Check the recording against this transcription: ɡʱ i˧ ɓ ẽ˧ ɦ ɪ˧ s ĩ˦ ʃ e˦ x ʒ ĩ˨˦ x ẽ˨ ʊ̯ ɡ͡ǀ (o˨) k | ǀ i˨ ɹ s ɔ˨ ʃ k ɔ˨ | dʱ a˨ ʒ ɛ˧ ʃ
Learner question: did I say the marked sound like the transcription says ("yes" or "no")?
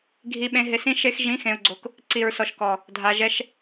yes